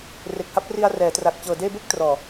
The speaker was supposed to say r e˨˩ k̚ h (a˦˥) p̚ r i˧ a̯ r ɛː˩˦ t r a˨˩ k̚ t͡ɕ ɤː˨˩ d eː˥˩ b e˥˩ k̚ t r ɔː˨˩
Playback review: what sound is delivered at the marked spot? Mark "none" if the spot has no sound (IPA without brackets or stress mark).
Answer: a˦˥